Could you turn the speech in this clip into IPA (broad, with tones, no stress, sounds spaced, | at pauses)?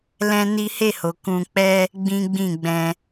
l ɛ̃˦ n i˦ h e˦˨ h o˨ k ũ˧ k͡p ɛ˦ | ɡ͡b ĩ˦ ɡ͡b ĩ˦˨ ɡ͡b ɛ̃˧